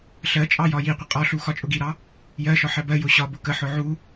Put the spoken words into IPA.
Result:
ɬ ɜ t͡ʃʼ ɑ j ɒ j i qʷ ə qʼ ɒ ɬ u x ɒ t͡ʃʼ ʊ ɡ i ɾ ɑ | j ɜ ʃ ɒ ħ ɜ b ɜ j ʊ ɕ ɒ b ʊ k ə ħ ʊ ʕ u

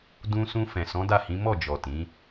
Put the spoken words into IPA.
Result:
d ũ˧ s ũ˧ f ɛ̃˨ s ɔ̃˨˦ d a˦˨ h ĩ˨˦ m ɔ˦˨ d͡ʒ ɔ˨ t ĩ˨˦

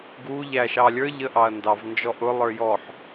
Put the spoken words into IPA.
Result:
ɡ u ʎ æ ʃ ɑ lʲ ə˞ ʎ ə ʔ ɑ ɐ̯ n d ɑ v n d͡ʒ ɔ ʔ ʊ lˠ ə˞ j ɔ ħ

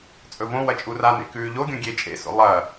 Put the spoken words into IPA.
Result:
t͡sʼ ɵ v õ w ɐ t͡ʃʼ u r a n ḛ k ʉː ʎ o ɡʲ õ ɡʲ e t͡ʃʼ ḛ s o̰ lˠ ɐ

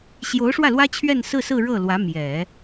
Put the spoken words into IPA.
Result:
ɕ j o˧˥ ʊ̯ ʂ w ä˥˩ l w ä˥ t͡ɕʰ ɥ ɛ˥˧ n s ɹ̩˥˧ s ɹ̩˥˧ ɻ ɤ˥˩ l w ä˧˥ m j ɛ˨˩˦

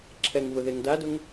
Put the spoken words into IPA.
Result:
ǁʰ ɛ ŋ v ʊ ð e ŋ d a d ʊ ŋ

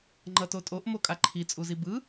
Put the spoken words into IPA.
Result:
ŋ͡ǃ ʌ t o tʼ o ʔ m o kʼ a ǃʰ i t͡sʼ u z i b ɯ

